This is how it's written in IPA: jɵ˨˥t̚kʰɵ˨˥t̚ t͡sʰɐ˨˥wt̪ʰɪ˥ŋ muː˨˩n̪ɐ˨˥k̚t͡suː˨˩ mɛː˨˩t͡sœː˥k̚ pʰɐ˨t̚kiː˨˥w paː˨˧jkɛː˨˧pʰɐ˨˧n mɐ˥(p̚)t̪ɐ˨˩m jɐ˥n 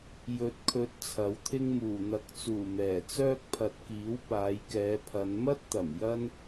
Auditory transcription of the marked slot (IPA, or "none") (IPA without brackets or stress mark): t̚